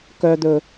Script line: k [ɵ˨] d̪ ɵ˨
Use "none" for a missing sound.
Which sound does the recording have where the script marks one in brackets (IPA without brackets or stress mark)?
œ˨